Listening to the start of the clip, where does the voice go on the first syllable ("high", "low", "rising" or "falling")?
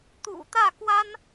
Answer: low